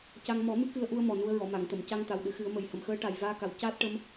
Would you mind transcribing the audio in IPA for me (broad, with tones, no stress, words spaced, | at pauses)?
ca˧ŋ mɔ˨˩˦ mɨ˧˥kɨ˧ə̯ʔu˧ə̯ mɔ˨˩nu˧ə̯ɹɔ˨˩˨ ma˨˩˨ŋt̪ə˨˩˨mca˧ŋ t̪a˨˩wɗɨ˨˩˦xɨ˨˩˦ə̯ mə˨˩jhə˨˩m xəː˧˥ʈa˨˩j vaː˧ka˨˩w caː˦˥t̚ʈə˧˥m